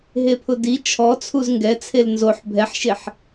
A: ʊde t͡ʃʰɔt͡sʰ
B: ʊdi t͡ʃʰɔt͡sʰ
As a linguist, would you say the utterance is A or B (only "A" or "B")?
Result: B